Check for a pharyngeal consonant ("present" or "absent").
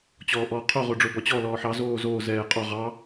present